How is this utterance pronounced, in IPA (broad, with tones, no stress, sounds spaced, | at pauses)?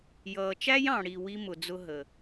j ʌː˨ t͡ʃ æ˦ j ɑ̃˨ ɽ i˨ w i˦ m ʊ˨ d͡z ʊ˦ ɦ ə˨